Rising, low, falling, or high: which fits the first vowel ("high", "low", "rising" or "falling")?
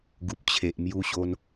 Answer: low